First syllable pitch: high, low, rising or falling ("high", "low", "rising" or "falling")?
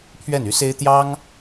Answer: falling